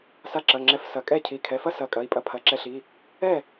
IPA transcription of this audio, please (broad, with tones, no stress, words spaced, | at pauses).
sa˧ǁɐ˩˧˩ŋ͡ǁɛ˧˩fsɐ˩˧˩ kʼɛ˥˩cʰi˩˧˩ kʰɛ˩˧˩fɐ˥sɐ˩˧˩ kʼɐ˩˧˩i̯pʼɐ˧ pʰɐ˩˧˩ǁɛ˧ɬi˩˧˩ | ɛ˥˩